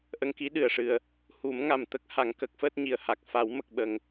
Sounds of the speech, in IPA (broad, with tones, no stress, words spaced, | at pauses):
ʔə˧ŋki˧˥ ɗɨ˨˩ə̯ʂɨ˨˩ə̯ | hu˨˩˦mŋa˨˩m t̪ə˦˥k̚ha˨˩˨ŋ kə˦˥k̚fəː˦˥t̚ ɲi˨˩ə̯ ha˨˩k̚fa˨˩˦w mə˨˩k̚ɓə˨˩ŋ